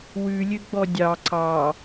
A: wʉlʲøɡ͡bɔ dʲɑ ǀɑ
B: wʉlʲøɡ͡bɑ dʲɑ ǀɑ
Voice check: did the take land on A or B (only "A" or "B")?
A